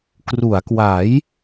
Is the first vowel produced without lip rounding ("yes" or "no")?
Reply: no